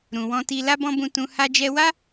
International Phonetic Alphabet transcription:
ɾ ũ˨ w ɔ̃˧ t i˧ l a˦ b ɔ̃˦ b ũ˧ t ũ˧ h a˧ d͡ʒ ɛ˧ w a˦

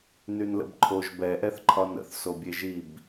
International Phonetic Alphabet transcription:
n y n l ə̰ b ǃʰ o ʒ b ɛ ʔ ɛ θ ǃʰ ɒ n ə̰ θ s o bʲ e ʒ i b

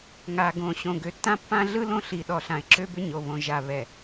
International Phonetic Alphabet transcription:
ŋ a˨ ɡ õ˨ ɕ õ˨ ɡ ø˨ tː ã˦ pː ã˦ ɮ ɯ˦ l õ˦ ɬ i˨ ɗ ɔ˨ ɬ ã˨ ɪ̯ ǁ ø˦ b ʏ˦ ɲ o˨ β õ˨ ʒ a˨ β ɛ˨

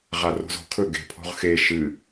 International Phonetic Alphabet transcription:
ʁ a r o̤ z o̤ kʰ ɵ ɡ e̤ pʰ o̤ ʁ x e ʃ ɨ

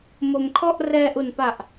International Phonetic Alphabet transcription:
m o˧ m kʰ ɔ˥˩ ʔ r ɛː˧ ʔ u˨˩ n p a˨˩ ʔ

